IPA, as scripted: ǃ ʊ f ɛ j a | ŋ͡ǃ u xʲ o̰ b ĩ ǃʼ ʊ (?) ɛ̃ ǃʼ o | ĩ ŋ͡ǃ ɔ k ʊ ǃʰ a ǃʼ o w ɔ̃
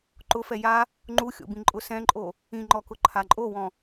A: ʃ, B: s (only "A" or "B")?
B